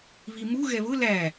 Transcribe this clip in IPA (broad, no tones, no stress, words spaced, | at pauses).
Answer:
βimu ɣɛβʊ læ